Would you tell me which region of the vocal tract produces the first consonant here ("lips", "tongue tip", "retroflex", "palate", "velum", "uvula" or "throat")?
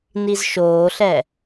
tongue tip